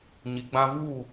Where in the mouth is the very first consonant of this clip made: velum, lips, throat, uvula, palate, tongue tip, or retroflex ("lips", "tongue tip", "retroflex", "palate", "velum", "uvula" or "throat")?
palate